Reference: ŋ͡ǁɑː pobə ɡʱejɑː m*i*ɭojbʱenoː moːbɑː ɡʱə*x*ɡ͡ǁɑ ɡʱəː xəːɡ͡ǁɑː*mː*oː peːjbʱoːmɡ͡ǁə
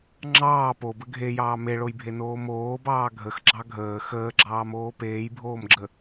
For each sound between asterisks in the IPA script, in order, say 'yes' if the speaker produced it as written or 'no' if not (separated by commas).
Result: no, yes, no